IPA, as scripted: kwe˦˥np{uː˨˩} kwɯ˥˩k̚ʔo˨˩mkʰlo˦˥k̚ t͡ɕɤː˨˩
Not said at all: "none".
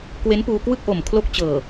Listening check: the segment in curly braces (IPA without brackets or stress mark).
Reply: uː˧